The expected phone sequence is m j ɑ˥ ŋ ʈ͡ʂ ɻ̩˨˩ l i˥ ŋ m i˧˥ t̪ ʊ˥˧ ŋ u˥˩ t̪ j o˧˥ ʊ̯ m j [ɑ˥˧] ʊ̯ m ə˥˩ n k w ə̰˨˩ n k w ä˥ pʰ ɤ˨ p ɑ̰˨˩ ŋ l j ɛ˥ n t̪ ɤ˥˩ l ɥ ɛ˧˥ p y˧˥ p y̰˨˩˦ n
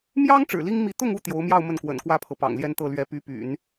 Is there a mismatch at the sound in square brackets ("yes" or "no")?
no